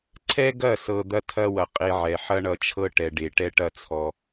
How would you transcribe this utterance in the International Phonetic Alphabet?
ǀʰ ɛ˦ ɡ ɐ˦˨ s ɤ˨ d̪ ɐ˦ tʰ ɐ˦ w ɐ˨ qʼ e˦ ʕ ɛ˨ ħ ɐ˦ ɳ ʌ˨ t͡ʃʰ ɤ˦ ʈ ɛ˨ ɖ e˨ ʈ ɛ˦ ʈ ɐ˦ t͡sʰ ɔ˦

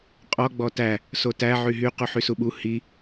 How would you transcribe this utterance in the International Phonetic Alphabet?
qʼ ɔ ɡ͡b ɔ t æ | s o t æ ʕ y ɦ y q u ħ y s u ɓ u h i

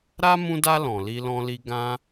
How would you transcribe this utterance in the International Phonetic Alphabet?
ɾ a˦ m ũ˧ d a˧ l ɔ̃˨ l i˧ l ɔ̃˧ l i˧ ɡ ã˧

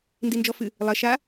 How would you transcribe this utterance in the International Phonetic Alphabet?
n d i n d͡ʒ ɔ f ɨ | lˠ ɐ ʃ a

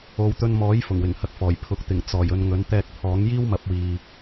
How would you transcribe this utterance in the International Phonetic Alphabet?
o˨˧ w t̪ ɵ˧ n m ɔː˨˥ j f ʊ˨˩ ŋ w ɪ˨˩ ŋ h ɐ˧ k̚ f ɔː˨˩ j pʰ ʊ˨ k̚ t̪ ɪ˨˩ ŋ t͡s ɔː˨˩ j ɵ˨ n ŋ ɵ˨˥ n t̪ ɛː˧ k̚ pʰ ɔː˨˥ ŋ j iː˥ w m ɐ˨˥ p̚ w iː˨

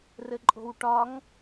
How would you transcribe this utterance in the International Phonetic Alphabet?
r ɘ ǃʼ o̤ w ʈ ɒ ŋ

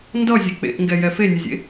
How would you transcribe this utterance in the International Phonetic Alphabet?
n d ʌ zʲ ɛ k͡p ḛ ʔ ŋ ɡ ɛ j ɛ f e nʲ ʌ zʲ ḛ

